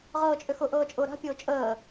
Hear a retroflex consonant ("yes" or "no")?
no